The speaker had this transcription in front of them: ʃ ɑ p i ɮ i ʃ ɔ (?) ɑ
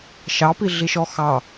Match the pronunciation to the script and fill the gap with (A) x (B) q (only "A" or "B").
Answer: A